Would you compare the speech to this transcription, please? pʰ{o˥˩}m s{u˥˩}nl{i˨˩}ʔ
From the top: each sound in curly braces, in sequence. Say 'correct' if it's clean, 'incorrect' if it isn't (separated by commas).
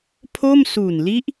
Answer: correct, incorrect, incorrect